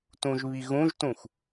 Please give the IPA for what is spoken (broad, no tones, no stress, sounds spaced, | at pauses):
t ũ ʒ β i ɣ ũ ʒ t ũ x